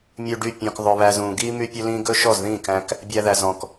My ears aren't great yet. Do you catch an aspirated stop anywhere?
no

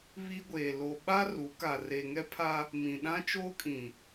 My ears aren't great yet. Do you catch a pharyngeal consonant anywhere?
no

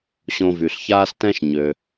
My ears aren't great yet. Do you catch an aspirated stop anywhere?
no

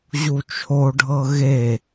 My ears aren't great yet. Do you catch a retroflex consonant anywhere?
yes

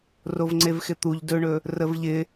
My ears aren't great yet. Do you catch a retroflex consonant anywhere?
yes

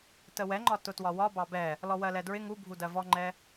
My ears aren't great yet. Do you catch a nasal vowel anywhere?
no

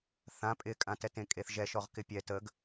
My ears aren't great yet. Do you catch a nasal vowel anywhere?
yes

